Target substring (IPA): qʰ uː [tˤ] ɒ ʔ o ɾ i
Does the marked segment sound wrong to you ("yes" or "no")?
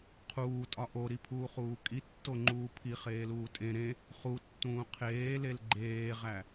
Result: yes